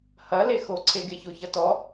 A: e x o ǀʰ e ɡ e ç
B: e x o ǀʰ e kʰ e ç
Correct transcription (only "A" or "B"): A